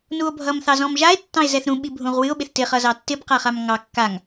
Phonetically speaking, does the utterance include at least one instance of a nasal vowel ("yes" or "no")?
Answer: yes